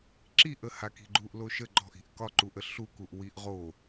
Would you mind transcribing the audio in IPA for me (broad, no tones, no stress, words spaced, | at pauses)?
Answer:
ǁiʔəhaki̤ ɡ͡ǃuʔloʃə ɡ͡ǃɔ̤ʔi̤ʔ kɒǃuʔə ɬukuʔwiʔ ʁo